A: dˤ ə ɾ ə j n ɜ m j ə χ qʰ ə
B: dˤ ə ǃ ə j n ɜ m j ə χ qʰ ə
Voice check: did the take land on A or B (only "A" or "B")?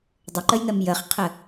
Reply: B